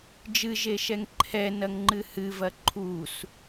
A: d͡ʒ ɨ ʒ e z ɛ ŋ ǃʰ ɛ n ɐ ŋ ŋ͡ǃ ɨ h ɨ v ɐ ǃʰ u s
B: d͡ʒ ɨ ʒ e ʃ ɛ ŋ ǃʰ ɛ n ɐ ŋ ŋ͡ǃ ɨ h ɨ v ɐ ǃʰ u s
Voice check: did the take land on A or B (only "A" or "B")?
B